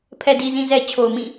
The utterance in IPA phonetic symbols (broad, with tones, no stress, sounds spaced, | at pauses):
pʰ ɛ˨ d i˨ z ĩ˨ z ɛ˨ t͡ɕʰ o˨ ʊ̯ m ĩ˦˨